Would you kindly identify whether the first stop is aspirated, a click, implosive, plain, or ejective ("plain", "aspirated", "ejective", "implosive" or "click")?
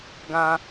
plain